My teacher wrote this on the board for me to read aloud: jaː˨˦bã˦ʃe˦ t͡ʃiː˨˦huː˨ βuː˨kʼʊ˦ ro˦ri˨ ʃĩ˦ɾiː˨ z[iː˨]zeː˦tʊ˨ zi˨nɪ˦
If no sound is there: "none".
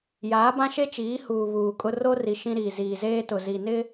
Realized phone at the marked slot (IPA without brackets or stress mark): iː˨